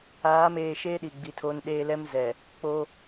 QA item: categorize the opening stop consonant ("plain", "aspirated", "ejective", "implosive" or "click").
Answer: implosive